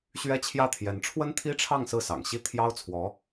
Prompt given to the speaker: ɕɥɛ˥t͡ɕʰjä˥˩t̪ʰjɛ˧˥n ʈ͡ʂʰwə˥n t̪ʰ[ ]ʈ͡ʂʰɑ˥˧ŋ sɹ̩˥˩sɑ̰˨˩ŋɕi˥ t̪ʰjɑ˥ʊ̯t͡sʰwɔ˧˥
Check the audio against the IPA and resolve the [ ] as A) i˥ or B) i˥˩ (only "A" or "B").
A